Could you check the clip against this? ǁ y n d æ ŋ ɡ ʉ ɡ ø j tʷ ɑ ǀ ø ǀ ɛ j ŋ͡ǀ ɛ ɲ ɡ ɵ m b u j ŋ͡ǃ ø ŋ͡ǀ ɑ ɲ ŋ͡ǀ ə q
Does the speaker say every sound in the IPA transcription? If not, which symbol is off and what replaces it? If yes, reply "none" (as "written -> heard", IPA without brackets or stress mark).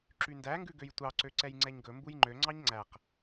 ə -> æ